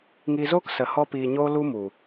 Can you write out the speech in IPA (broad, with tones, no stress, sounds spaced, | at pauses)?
ŋ iː˧ z oː˦ k s ə˧ h ɔ˦ p iː˧ ɲ oː˦ l u˦ m u˨